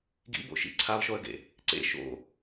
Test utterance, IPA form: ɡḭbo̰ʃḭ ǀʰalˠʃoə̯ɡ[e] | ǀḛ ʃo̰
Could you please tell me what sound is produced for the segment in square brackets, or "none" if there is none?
ḛ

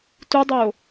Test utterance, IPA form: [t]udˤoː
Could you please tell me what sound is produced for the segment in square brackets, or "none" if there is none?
t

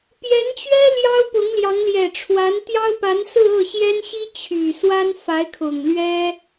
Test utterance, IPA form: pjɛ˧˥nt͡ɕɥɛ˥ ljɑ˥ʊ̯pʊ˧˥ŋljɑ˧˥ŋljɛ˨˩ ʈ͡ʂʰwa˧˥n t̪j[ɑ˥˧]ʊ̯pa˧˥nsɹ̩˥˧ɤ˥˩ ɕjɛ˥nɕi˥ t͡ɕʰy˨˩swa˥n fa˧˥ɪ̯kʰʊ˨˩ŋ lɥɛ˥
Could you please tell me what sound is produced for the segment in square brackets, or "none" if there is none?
ɑ˥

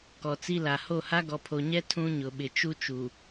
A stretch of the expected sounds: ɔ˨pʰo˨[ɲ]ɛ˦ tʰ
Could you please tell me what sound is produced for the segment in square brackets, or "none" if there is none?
ɲ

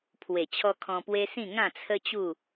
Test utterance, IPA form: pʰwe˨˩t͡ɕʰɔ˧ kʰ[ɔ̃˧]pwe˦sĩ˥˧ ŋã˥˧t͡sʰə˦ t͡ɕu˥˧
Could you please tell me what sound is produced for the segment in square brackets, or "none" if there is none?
ɔ̃˧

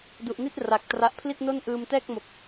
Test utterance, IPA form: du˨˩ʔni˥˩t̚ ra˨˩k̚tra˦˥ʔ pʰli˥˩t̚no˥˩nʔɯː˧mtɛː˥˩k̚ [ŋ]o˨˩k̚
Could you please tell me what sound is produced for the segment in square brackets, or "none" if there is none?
m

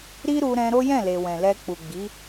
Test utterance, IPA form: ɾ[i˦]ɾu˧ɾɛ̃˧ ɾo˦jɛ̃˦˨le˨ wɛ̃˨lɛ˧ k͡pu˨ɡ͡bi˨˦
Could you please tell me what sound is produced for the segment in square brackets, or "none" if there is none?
i˦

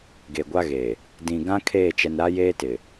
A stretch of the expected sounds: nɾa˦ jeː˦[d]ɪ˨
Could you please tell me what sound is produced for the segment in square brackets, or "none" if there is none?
t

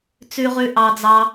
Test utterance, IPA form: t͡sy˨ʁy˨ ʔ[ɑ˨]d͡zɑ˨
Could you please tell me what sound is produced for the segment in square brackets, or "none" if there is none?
ɑ˨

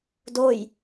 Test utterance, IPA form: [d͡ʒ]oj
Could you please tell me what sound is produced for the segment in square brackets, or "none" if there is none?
d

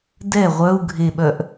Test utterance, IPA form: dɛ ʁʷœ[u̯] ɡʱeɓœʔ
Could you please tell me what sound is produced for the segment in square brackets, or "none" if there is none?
u̯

